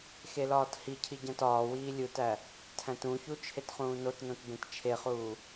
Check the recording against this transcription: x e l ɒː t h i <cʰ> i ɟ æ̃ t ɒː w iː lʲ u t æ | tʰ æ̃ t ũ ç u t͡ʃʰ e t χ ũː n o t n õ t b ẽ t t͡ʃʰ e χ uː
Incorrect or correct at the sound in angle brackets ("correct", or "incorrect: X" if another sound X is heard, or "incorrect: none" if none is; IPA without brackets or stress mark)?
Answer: correct